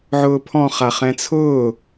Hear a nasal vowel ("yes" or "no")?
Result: yes